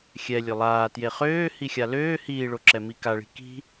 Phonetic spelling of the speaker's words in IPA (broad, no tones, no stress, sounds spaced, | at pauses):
xʲ ɛ lʲ ø lˠ aː t j e χ øː h i xʲ a l øː h iː ɭ o ǁ ɛ m i k a ɭ i̤ k i̤